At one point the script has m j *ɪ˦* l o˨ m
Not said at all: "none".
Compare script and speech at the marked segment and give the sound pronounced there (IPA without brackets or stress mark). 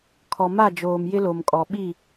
ɪ˦